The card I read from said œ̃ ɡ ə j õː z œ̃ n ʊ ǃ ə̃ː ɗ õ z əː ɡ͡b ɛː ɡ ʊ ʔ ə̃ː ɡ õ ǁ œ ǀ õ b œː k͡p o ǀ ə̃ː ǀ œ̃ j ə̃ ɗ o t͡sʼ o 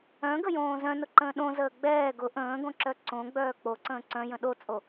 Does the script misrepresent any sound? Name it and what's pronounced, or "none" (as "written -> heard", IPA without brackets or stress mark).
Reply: b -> ɡ͡b